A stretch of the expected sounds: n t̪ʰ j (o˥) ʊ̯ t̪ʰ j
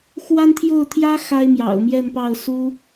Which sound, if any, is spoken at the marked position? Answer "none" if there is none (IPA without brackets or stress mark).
o˥˩